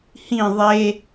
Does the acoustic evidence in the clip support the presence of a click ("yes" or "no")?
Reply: no